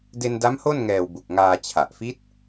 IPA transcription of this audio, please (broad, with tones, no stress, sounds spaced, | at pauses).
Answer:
d e˧ n d a˦˥ m h o˥˩ n ŋ ɛː˨˩ w b u˨˩ k̚ ŋ aː˧ t͡ɕʰ a˨˩ ʔ f i˦˥ t̚